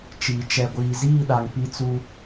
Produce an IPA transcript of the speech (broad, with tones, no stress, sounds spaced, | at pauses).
t͡ʃ iː˨ t͡ʃ ɛ˨ ɡʷ iː˨ z iː˦˨ ɗ a˨ ŋ p i˦ t͡s u˦